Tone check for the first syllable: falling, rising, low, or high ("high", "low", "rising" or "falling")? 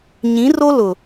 rising